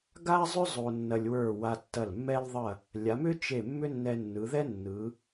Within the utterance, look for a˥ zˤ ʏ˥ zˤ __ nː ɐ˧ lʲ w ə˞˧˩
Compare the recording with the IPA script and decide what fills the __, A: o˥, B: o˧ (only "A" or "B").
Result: B